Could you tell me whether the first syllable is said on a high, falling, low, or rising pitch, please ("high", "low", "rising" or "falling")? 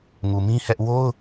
low